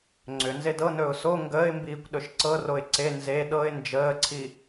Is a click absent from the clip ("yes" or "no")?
no